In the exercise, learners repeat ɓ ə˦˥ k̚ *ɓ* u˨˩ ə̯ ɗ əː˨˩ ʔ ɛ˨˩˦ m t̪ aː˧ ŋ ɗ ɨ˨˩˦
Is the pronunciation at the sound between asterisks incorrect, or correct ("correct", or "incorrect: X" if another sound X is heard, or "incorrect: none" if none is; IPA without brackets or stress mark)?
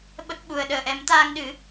correct